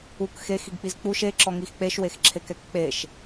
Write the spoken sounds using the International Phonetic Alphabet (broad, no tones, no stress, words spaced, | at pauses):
uk xexiɡk͡piz k͡puʃ eǁɔŋix k͡peʃwexǁʰekɛk k͡peʃ